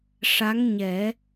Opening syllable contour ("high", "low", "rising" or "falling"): rising